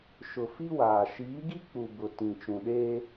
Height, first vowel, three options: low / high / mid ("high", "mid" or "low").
high